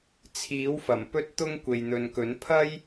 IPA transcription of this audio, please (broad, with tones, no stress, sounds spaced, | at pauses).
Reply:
t͡sʰ iː˨˥ w f ɐ˨˩ m p ɵ˧ t̚ t̪ ʊ˧ ŋ kʷ e˨ j n̪ ɵ˨ n k ɵ˨˥ n pʰ ɐ˥ j